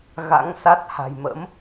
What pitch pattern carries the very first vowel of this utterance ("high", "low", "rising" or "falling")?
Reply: rising